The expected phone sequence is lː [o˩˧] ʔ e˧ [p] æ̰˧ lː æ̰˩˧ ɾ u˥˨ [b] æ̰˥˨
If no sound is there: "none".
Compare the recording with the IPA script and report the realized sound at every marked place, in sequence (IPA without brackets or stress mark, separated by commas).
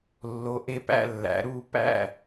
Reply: o˩˧, p, p